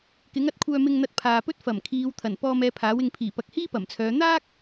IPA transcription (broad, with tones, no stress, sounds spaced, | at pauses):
k ɪ˨˥ ŋ ɐ˧ t̚ kʷʰ œː˨ m ɪ˨ ŋ n̪ ɐ˨ t̚ pʰ aː˨ p ɵ˥ t̚ f ɐ˨˩ m kʰ iː˨˧ w t̪ʰ ɐ˨˩ n p ɔː˧ m ɛː˧ pʰ aː˨˥ w ɪ˨ ŋ pʰ iː˨˩ p ɐ˨˥ k̚ h iː˥ p ɐ˨˩ m t͡sʰ œː˨˧ n̪ aː˥ k̚